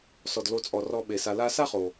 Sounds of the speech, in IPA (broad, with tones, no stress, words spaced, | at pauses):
sɔ˩dlo˨t͡sʼɔ˩ rɔ˨ ɓe˩sa˨la˦ sa˥χo˩